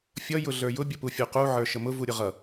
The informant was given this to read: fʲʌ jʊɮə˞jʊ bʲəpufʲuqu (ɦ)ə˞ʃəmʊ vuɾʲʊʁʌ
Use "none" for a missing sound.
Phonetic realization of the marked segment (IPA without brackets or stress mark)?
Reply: ʕ